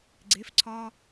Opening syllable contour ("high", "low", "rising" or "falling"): rising